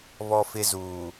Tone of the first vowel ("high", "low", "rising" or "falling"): high